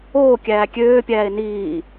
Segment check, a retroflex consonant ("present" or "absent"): absent